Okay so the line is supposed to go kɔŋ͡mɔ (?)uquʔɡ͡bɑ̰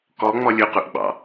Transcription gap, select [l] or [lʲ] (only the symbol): lʲ